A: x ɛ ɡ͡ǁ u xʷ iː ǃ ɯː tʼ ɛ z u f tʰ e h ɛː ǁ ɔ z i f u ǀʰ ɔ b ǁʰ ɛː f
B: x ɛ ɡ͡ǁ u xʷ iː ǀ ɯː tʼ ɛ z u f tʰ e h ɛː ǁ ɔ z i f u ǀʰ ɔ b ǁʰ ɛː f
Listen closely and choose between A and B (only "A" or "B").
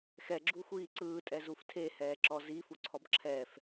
B